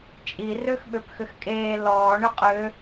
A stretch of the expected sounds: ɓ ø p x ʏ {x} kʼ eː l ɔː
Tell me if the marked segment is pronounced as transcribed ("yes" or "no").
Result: yes